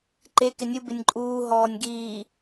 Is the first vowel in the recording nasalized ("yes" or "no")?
no